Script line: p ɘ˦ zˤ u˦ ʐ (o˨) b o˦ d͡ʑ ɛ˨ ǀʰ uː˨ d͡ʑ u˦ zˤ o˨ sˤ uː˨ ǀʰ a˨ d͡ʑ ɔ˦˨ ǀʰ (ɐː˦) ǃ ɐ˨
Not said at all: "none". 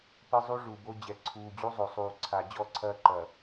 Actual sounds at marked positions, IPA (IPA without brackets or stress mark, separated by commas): u˨, ɐː˦